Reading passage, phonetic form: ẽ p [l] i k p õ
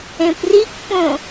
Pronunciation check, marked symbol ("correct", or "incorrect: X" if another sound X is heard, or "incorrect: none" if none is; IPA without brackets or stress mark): incorrect: r